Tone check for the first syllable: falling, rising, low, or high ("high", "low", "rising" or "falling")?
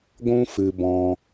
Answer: high